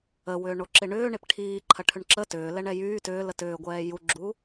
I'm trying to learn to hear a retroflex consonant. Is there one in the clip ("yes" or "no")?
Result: yes